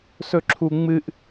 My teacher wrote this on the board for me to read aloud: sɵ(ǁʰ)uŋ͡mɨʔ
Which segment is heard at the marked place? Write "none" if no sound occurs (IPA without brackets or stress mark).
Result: ǁʰ